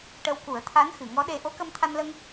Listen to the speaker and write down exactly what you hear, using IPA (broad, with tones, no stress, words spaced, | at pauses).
ʈə˧wku˨˩˦ə̯t̪ʰa˧˥n xɨ˨˩˨ŋɔ˧˥ɗe˧ ʔo˧˥kə˧m t̪ʰa˧nlə˧ŋ